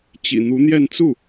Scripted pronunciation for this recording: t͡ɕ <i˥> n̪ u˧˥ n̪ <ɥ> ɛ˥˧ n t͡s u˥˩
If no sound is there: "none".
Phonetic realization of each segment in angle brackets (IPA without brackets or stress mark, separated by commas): ḭ˨˩, j